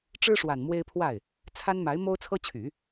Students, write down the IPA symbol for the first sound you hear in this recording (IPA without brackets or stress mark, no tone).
ʈ͡ʂ